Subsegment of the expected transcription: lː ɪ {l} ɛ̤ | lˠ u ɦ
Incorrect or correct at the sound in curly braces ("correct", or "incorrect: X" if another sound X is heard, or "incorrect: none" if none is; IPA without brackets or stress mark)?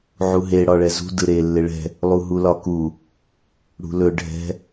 incorrect: ɭ